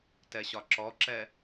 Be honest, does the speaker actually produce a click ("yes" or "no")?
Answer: yes